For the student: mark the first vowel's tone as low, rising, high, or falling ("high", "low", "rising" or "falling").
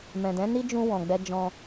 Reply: low